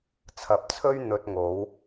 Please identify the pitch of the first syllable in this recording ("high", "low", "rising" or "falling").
rising